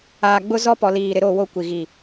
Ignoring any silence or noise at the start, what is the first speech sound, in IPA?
aː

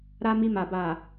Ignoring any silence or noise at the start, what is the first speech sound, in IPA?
ɾ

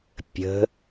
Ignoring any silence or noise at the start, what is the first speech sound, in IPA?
pʲ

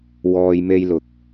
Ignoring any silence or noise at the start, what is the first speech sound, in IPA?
w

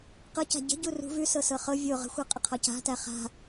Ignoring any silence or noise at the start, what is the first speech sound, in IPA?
q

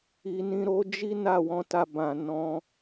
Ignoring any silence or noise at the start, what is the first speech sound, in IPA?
i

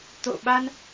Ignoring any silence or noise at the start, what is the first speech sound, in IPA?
t̪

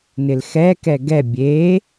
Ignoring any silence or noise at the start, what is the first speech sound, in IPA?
n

